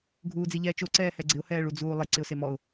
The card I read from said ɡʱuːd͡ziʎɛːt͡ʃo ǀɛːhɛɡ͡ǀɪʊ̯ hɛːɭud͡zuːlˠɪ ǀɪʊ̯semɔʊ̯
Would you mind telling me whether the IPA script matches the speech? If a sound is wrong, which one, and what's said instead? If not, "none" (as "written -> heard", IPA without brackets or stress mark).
none